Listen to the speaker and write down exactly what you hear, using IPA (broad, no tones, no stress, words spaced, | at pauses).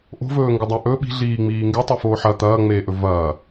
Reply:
ʔo̤vɵːŋɡɨdˤa ʔɵ ɓi̤ɮiːŋ͡miː ŋɡetˤufoː ħɐ t̪ɐːŋ͡meːʔɵ vɐː